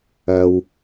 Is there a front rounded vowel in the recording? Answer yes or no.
no